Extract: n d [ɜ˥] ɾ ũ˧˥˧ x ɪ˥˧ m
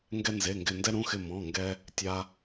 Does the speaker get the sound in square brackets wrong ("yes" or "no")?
yes